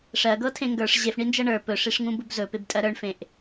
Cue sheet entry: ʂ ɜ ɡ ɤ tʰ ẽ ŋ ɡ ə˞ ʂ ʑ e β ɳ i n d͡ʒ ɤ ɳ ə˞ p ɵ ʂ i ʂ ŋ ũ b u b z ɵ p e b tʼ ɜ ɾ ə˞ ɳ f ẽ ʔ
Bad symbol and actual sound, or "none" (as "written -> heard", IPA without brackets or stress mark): β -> f